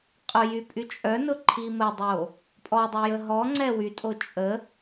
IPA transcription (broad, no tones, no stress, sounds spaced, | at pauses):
qʼ ʊ j y pʼ y t͡ʃʼ œ n ʊ ǃʰ i m ə dˤ o | pʼ ɔ dˤ o j ə ɦ ɔ ŋ͡ǀ ɛ w y tʼ o t͡ʃʼ ə